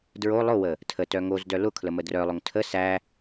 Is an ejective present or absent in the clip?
absent